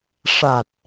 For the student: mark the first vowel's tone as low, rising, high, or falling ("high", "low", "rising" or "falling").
low